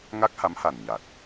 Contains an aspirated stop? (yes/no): no